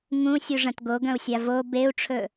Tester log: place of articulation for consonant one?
velar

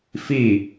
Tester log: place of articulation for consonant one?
labial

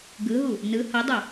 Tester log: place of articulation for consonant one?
velar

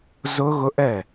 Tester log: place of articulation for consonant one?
alveolar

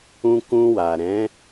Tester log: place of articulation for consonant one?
velar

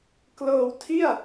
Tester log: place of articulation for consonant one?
velar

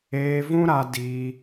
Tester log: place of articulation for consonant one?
labial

